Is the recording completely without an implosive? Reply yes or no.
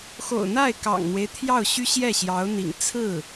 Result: yes